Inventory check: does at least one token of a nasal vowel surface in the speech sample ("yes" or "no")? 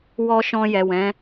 yes